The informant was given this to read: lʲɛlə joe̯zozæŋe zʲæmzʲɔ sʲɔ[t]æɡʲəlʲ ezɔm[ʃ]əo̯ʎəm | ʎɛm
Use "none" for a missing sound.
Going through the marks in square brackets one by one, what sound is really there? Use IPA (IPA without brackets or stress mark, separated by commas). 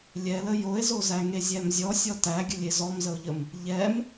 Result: t, z